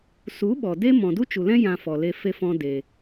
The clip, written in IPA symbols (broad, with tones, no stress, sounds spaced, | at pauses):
s u˨˦ ɓ ɔ˨ d e˦ m ɔ̃˨ d u˦ t͡ʃ u˨ l ɛ̃˦ j ã˧ f ɔ˨ l e˧ f e˦ f ɔ̃˦ d e˧